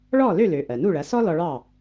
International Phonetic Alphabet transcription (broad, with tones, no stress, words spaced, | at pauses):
ɭɔ˥˩ lø˥˩lø˩ ʔɜ˩nu˥˩ɭɐ˩˥sɔ˥ lɔ˧ɭɑ˥˩